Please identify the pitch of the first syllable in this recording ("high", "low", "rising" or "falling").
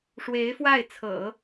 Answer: rising